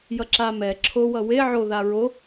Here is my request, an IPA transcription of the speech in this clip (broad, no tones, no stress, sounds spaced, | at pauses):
j ʌ ǁ a m ɛ ǁʰ o w ʌ w e ʕ o ð a ɹ o